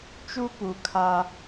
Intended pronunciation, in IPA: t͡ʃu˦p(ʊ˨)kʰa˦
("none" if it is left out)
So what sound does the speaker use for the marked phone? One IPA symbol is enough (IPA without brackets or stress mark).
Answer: u˨